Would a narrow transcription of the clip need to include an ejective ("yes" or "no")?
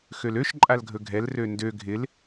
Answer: yes